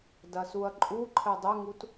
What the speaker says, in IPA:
d ɐ s u ɐ̯ ǃʼ u ǃʰ ɛ dˤ ɘ ŋ u t

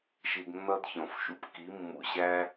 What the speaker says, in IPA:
ʃ i˧ d nː ʌ˦ d ç ɔ̃˨ f ʃ ṵ˨ p k i˨˦ mː ṵ˨ ɕ æ˦

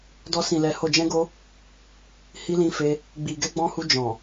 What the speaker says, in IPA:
d ɔ˧ s ĩ˨ l ɛ˨ h o˨ d͡ʒ ɛ̃˧ ɡ o˧ | h i˧ l ĩ˧ f e˧ | ɡ͡b i˨ ɡ ɛ˧ ɡ͡b ɔ̃˧ h u˧ d͡ʒ ɔ̃˨

